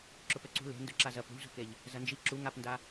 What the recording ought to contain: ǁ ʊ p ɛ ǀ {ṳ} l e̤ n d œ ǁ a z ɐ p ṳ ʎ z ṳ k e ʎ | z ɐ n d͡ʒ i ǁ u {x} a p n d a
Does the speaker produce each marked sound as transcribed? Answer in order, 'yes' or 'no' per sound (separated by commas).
yes, no